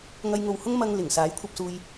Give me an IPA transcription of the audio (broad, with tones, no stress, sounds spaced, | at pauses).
ŋ ɐ˧ j ŋ o˨ w h ʊ˥ ŋ m ɐ˧ ŋ l ɪ˨˩ ŋ s aː˨˥ j kʷʰ ɐ˧ p̚ s uː˧ j